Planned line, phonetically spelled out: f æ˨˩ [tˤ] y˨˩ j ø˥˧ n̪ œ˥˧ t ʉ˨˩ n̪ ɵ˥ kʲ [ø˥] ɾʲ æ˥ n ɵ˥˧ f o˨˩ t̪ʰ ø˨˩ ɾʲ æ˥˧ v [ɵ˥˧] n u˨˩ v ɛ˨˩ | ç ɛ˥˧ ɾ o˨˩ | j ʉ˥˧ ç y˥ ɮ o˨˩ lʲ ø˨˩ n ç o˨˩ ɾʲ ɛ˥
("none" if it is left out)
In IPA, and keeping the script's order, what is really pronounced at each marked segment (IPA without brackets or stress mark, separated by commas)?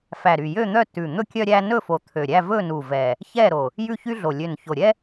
ɾ, œ˥, ɵ˥˧